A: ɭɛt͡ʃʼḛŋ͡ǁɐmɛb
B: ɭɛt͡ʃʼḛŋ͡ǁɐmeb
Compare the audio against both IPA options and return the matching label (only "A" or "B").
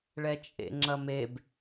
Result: B